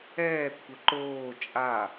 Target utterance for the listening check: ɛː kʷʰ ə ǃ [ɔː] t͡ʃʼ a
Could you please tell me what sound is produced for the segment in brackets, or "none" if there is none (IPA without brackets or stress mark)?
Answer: oː